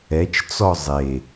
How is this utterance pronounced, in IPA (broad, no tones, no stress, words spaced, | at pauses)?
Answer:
ɛt͡ʃt͡sɔ zˤe